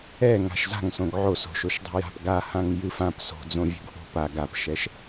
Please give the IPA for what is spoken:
ɛ ŋ a̤ ʃ z a̤ ŋ s õ ɡ ʕ o s o̤ ʃ o ʃ dˤ o̤ j a̤ p ɡ a h ã ŋ j ɨ f ã p s o̤ d͡z õ vʲ o̤ ɡ ʔ o̤ p a ɡ a p ʃ ɛ ʃ

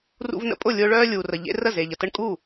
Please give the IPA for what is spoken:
r ṵ˦ v n ə̰˦ pʼ ʊ˥˩ lʲ ʊː˦ ɭ œː˦ lʲ uː˨ r ə˨ ʎ ḛ˦ r ə˥˩ z e˨ ʎ ə˨ t ə˦ ɳ kʼ u˥˩

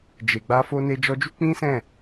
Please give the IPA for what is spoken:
d͡ʒ e˨ ɡ͡b a˧ f o˧ n e˧ d͡ʒ ɔ˧ d͡ʒ u˦ k͡p ĩ˦ s ɛ̃˦˨

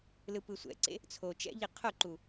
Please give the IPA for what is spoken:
l ɯ p ɯ sʷ ɛ̰ ǀ ḛ | t͡sʰ o t͡ʃ ɛ̰ ʎ i qʰ o ǃ u

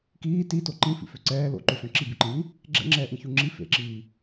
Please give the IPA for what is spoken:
k iː t i t o ǃ ĩ f ḭ f ø ǀ ɛː l o̰ ǃ ø ɬ œ̃ ǁ i b y ǃ ĩ j ĩ | ɡ͡ǁ ɛ̰ ŋ͡ǁ ɛː ʔ ĩ ç u ŋ͡ǁ i f ḛ ǁ iː

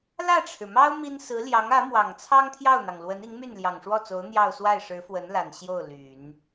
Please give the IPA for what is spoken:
l ä˥˩ ʈ͡ʂʰ ɻ̩˩ m ɑ˥ ʊ̯ m i˥ n s ɹ̩˧˥ l j ɑ˧˥ ŋ ä˧˥ m w ɑ˨˩ ŋ t͡sʰ ɑ˥ ŋ t̪ʰ j ɑ˥˩ ʊ̯ n̪ ɑ˩ ŋ l w ə˧˥ n i˧˥ ŋ m y˥˩ n l j ɑ˨˩ ŋ ʂ w ɔ˥˩ t͡s o˧˥ ʊ̯ n̪ j ɑ˥˧ ʊ̯ s w a˥˩ ɪ̯ ʂ ɻ̩˧˥ f w ə˧˥ n l a˨˩ n ɕ j o˥˩ ʊ̯ l y˨˩˦ n

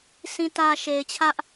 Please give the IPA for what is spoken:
sʰ ĩ˨ t ä˨ ʃ e˨ ɪ̯ t͡ɕʰ ä˦ ʔ

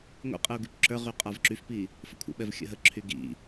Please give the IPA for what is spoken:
ŋʷ ḭ qʼ ə u̯ ɡ y p ǁ ə˞ ʁ y qʼ a v ǁ y f p i | f ə kʷʰ ə̰ ɓ ɛ v xʲ ə̰ ɦ ə ǁʰ y ɡ ḭ

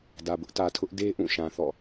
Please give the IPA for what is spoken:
d ä˨ b ʊ˦ ʔ t ä˨ tʰ ʊ˦ ʔ d e˦ ʔ ũ˦˨ ʃ ã˨ θ ɔ̰˦˨

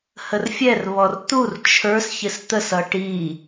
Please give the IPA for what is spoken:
h ə r fʲ ɛ r β ɔ r t̪ u r t͡ʃʰ ə˞ s ç ɪ s t̪ ə s ʌ ʈ i

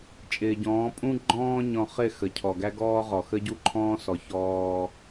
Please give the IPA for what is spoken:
t͡ʃʼ ɪː˨ ɟ ɔ̃ː˨˦ pʼ ũ˦ ɡ͡ǃ ɔ̃ː˦ ɲ ɔ̃˨ χ ɪ˦˨ x ə˨ cʰ ɔ˨ ɡ æ˦ ɡ ɔː˦ ʁ ɔ˨ x ə˦ ɟ u˦ ǃʰ ɔ̃ː˦ s ɔ˨ ç ɔː˦

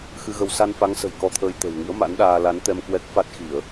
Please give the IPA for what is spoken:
x ɨ˧ ɣ ə˧ w s a˧ n f a˨˦ ŋ s ə̤˨˩ j k ɔ˧ t̪ʰ əː˧ j t̪ ə̤˨˩ w ŋ ɨ̰˧˥ ə̯ m a̰˧˥ n ɗ aː˧ l a˨˦ n t̪ ɛ˧ m k w ɛ˦˥ k̚ f a˦˥ t̚ x i˧˩˨ ə̯

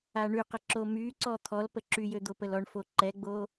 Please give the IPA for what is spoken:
a ɳ y q ə ǁ o m y ǀ ɔ t̪ʰ ɔ l p ə ǁ y j ø d̪ o p ə l ɔ ɳ f o ǃ ɛ ɡ͡b o

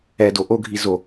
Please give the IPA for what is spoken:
ɛ d o ʔ o ɡʱ i z o

